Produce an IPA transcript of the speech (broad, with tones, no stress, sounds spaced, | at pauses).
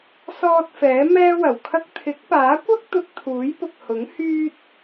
s ɔː˧ t̚ f ɛː˨˥ m ɛː˥ w ɐ˨˩ w kʰ ɐ˥ k̚ t̪ʰ ɪ˨˥ k̚ p aː˨˥ kʷ ɐ˥ k̚ t̪ ʊ˧ k̚ t̪ʰ uː˨˥ j p ʊ˨ k̚ h ʊ˨˥ ŋ h yː˥ t̚